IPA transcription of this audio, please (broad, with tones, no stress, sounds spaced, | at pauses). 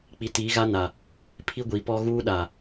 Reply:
k͡p i˨˦ t i˨˦ ɣ a˦ n a˨ | pʰ i˦ ɡʷ i˨ p ɔ˦ ɣ uː˦ ɗ a˨